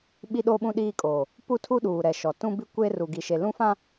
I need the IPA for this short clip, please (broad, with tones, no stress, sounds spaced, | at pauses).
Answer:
ɓ i˦ ɗ o˦ ɓ ũ˦ ɗ iː˦ kʼ oː˨ | p u˦ tʰ u˦ ɗ uː˨ ɾ ɛ˨ ʃ ɔ˨ t ũ˦ b i˦ kʷ eː˦ r u˨ ɡ i˨ ʃ e˨ l ũ˦ f ã˦